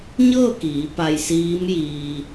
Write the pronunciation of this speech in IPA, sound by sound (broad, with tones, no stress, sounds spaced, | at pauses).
ɲ ɤː˥˨ k iː˩˧ p a˧ j s iː˧˥ m j iː˧